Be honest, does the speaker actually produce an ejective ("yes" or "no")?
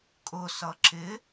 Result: yes